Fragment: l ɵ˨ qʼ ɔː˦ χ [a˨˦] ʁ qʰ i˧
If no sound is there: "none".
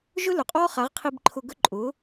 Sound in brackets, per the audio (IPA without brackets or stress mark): a˨˦